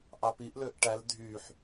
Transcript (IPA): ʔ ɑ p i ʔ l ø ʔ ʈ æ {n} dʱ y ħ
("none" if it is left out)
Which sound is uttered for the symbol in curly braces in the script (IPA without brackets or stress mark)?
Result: l